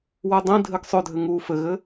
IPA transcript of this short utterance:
wɛdˤĩdʱɘɡ sˤødʱɘ ŋuːfɘɣɘ

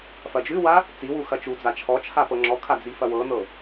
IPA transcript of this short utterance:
fɐd͡ʒʉwa | t͡siwu xɐt͡ʃud͡za t͡ʃʰɔt͡ʃʰa pɤŋ͡ǁɔkʰa d͡zifɐwɤnɤ

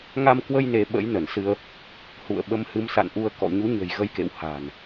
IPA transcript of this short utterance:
ŋa˧mkwə˧j ne˨˦ɓə̰˧˥j nə˧˩nsɨ˧ə̯ | hṵ˧˨ə̯ɓə˧m hɨ˨˦msa̰˧˨nʔu˧ə̯kɔ̰˧˨ ɲu˨˦ɲə̤˨˩j ɣə˧jkḛ˧˨w ha̤˨˩n

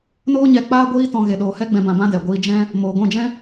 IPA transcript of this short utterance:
noː˦ɲɛ˧ k͡paː˦ɡʷiː˦ tɔ̃˧ ɣe˨ɗoː˨hɛ˦ ɡ͡bɛ̃˧ bã˧bã˦dɛ˨ ɡʷiː˧d͡ʒɛ̃˦ | moː˨ɡʷɛ̃˦˨d͡ʒɛ̃˦

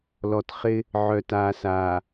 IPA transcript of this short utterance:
lɔ˨tχɪ˦ | ʕœ˨taː˨saː˨

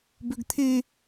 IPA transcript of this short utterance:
bøɡt̪ʰe

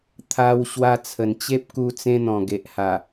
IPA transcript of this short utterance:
t̪ʰa˧w ɕwa˧t͡sʰə˨˩nt͡ɕe˦p̚ku˧ t͡sẽ˦n̪ɔ̃˨˩ɡe˨ʔha˨˩

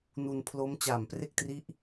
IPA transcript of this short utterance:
nu˧npʰlo˦˥m t͡ɕaː˨˩mpre˥˩k̚tri˦˥ʔ

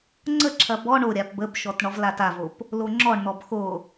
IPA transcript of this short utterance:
ŋ͡ǀəǁʰɐ bɔ ɳoɾʲap bəbʃɔt ɳɔvlatavop | loŋ͡ǁɔɳn̪ɔb xo

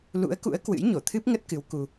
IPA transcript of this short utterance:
lṵ˧˥ə̯kṵ˧˥ə̯ kwɨ̰˧˥jɲo˧˩t̪ʰɨ˦˥p̚ŋə˦˥t̚ kɨ˨˦w ku˧

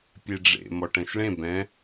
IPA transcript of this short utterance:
pʲeɖ͡ʐḛ mɔʈɛ̃ʃɭẽ bɛ̃

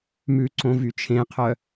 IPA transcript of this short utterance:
mʉǀõ vyt͡ʃʰẽqʰœ

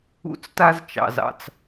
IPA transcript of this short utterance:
ṵ˦t͡sta˦zt͡ʃɑ̰˨zɑ̰˧t͡s

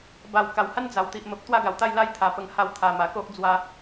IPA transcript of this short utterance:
ba˨˩w ka˨˩wha˦n d͡za˨˩wt̪i˨ʔ mə˨p̚ t̪wa˦ɡa˨˩wt̪a˥˧j la˦jt̪ʰa˨˩pə˧ŋ ha˧w t̪ʰa˨˩ma˨˩ko˦ʔ d͡zwa˧

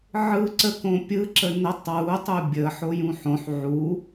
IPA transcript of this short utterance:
ʕɯ ǀəkõ pʲɯǁə nətˤ wutˤu bʲə ħojũħõħ ʕu

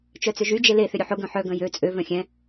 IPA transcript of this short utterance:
t͡ʃœt͡sʏʒy d͡ʒele θʏɾʲʊħʊ ɡœ̃ħœ ɡœ̃jø t͡sʼø vœ̃xʲɛ̃

